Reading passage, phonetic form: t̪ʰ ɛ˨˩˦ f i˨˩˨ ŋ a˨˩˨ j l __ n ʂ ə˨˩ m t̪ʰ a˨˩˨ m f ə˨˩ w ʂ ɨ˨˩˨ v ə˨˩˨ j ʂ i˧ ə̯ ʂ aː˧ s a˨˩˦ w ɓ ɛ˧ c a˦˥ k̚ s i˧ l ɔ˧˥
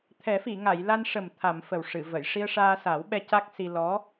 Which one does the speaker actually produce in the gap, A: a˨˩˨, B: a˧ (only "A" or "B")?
B